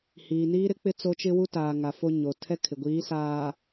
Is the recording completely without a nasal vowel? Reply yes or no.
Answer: yes